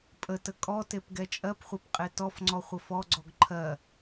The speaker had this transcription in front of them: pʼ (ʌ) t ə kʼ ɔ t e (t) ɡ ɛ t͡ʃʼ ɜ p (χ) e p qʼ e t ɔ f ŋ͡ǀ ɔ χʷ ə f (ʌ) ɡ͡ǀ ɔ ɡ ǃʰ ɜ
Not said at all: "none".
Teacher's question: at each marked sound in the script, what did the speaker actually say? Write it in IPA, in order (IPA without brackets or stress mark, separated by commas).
ə, p, χʷ, ɔ